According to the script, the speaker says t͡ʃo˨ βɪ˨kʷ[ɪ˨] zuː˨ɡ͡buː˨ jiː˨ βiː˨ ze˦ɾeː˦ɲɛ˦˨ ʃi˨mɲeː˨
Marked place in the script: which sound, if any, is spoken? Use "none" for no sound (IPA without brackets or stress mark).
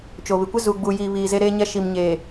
ɪ˦